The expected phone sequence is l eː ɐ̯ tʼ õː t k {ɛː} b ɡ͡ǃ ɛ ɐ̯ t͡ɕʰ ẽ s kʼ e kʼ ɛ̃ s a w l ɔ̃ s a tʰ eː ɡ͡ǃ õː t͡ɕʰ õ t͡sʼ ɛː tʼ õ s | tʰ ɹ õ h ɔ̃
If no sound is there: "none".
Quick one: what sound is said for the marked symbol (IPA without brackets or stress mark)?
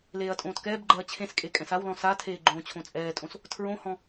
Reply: ɛː